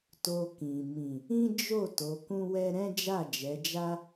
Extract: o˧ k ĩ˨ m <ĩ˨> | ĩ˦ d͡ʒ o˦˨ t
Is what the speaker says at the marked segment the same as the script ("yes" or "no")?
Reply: yes